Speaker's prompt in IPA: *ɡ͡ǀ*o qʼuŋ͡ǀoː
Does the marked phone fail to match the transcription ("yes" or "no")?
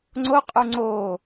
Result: yes